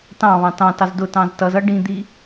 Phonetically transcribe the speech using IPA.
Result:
tɑ̃βɑ̃ tɑ̃tɑz dʊ tɑ̃ztʌzʌ ɖĩd̪i

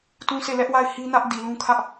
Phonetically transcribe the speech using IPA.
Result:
tũ˦se˦˨lɛ˦ʔwa˦˨ɪ̯ hi˦nä˦ʔ di˨lũ˦kʰä˦ʔ

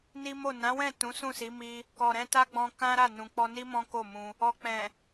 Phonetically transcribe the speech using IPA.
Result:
ni˦mo˦˨ nã˨˦wɛ̃˦˨ tũ˨˦sũ˦˨si˨˦ mi˦ | kɔ˨ɾɛ̃˧ta˦ɡ͡bɔ̃˧ kã˦ɾa˦˨ nũ˨k͡pɔ˧ni˦ mɔ̃˦ko˦˨mũ˧ | ɔ˨k͡pɛ̃˨

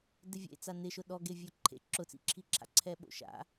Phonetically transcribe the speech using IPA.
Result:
dɪvʲḛt͡sa nɪʃʊ ɗɔ ɡevʲoǃʰḛ ǁʊt͡sḭǁʰiǁʰa̰ ǀʰɛɓo̰ʃa̰

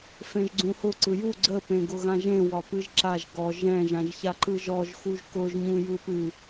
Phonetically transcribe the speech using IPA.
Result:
fẽʒɡ͡ǀũhʊ ǀɯju ɡ͡ǀə pẽɡʊɣãʒẽ wɒpɨʒǁaʒ ɡɔʒ ɛ̃ ʒãʒçaǃɯʒɔʒ xuʒkʊʒ ɲũjɯpɨ

